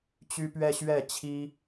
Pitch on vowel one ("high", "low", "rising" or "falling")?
high